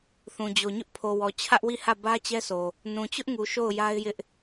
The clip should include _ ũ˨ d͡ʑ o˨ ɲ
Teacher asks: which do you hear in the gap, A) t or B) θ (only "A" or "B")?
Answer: B